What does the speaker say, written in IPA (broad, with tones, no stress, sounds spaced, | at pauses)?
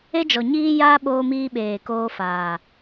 e˦ d͡ʒ ɔ˨ ɲ iː˦ j aː˦ ɓ oː˧ m iː˧ ɓ eː˨ k oː˧ f aː˨